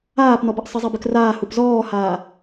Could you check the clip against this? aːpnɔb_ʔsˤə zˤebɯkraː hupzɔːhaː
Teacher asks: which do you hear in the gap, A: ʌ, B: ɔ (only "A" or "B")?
A